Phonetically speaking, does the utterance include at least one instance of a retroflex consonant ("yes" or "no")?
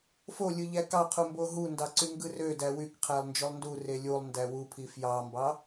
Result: no